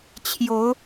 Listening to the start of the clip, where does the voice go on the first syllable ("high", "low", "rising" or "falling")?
rising